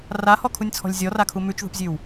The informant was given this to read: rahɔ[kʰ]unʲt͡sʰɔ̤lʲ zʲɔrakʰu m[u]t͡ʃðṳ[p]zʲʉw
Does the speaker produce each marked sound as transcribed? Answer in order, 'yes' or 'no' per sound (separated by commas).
yes, no, yes